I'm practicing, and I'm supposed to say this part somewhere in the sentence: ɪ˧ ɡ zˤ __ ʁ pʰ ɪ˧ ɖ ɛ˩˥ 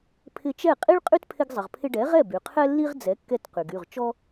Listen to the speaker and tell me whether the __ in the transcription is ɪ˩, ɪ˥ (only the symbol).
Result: ɪ˩